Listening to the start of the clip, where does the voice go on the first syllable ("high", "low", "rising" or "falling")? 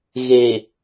low